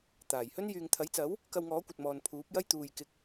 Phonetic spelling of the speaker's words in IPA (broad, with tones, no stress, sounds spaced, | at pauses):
t̪ aː˨˩ j h ɵ˥ n j yː˨ ŋ t̪ʰ ɐ˨˥ j t͡s ɐ˨˥ w | k ɐ˧ w ŋ ɔː˨˥ kʷ ɐ˨ t̚ m ɔː˨ n pʰ uː˨˥ p̚ j ɐ˥ j t̪ uː˨ j k ɪ˨ k̚